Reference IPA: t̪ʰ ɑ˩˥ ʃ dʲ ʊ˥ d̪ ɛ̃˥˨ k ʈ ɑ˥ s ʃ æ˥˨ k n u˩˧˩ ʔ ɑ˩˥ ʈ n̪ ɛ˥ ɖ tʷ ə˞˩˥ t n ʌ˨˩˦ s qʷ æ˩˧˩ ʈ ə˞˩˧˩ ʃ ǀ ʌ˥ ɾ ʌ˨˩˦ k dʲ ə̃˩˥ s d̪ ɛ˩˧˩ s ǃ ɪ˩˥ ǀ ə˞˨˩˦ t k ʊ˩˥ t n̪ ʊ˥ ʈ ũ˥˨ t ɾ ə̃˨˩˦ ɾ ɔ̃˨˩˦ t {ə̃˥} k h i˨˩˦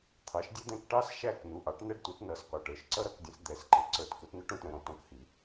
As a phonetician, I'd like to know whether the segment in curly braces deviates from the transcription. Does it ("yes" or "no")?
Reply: yes